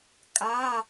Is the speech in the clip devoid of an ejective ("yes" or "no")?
no